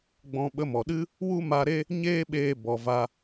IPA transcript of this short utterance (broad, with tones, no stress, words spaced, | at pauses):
ɡ͡bɔ̃˧ ɓə˧mɔ˨ɗɨ˦ | wu˦ma˧ ɾe˦ | ɲeː˦ɓeː˧ bɔ˨ va˦